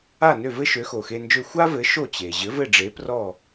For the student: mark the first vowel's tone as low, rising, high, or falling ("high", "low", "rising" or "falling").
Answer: falling